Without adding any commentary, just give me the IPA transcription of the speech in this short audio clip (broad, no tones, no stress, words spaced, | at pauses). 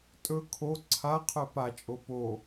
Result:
tʼɵ kʰo ǀʰa qʰœpat͡ʃʼo po